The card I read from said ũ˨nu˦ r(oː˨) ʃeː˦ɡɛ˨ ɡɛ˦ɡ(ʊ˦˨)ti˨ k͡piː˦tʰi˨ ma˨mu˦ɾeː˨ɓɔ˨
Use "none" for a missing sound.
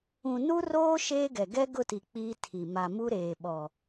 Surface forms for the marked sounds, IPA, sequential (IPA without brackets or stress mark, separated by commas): oː˦, ʊ˦˨